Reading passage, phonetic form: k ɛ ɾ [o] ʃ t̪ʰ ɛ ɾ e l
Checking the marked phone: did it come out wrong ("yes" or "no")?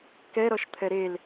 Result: yes